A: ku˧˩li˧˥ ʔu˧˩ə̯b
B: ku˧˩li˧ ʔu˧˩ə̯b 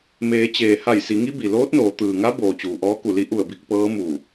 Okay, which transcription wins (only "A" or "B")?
A